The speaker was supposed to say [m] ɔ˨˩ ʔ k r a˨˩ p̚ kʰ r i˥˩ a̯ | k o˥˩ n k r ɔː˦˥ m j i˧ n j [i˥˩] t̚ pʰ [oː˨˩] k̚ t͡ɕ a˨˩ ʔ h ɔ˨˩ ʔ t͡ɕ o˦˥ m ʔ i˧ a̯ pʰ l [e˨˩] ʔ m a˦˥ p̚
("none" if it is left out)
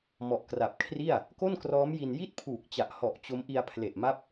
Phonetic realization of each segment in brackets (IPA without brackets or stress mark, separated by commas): m, i˥˩, uː˨˩, e˨˩